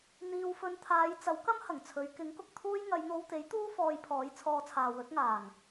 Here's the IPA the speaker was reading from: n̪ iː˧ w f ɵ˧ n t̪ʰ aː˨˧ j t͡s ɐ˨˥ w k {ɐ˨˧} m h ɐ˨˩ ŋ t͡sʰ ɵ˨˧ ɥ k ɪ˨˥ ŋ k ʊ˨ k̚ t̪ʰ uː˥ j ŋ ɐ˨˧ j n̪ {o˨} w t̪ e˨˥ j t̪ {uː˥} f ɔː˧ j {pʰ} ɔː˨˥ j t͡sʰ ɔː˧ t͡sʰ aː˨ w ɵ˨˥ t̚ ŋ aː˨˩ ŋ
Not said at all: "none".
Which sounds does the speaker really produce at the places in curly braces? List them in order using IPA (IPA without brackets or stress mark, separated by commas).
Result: ɐ˥, o˧, uː˥, pʰ